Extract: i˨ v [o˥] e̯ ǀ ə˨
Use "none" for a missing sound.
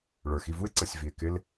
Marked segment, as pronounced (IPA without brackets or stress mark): u˥